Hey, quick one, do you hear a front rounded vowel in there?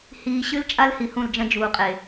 no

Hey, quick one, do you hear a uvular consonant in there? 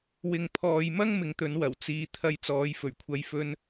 no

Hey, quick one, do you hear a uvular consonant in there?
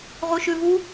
yes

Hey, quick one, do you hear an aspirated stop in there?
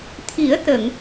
yes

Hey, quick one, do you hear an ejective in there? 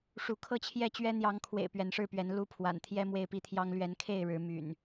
no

